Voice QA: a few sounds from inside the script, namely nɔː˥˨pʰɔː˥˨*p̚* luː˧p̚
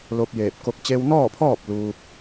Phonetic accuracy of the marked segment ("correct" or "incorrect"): correct